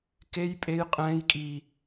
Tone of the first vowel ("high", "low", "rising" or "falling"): high